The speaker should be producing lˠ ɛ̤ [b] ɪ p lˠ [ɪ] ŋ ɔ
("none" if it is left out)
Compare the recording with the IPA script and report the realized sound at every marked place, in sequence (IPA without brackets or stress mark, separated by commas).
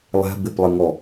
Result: b, ɪ